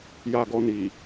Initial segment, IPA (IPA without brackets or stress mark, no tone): j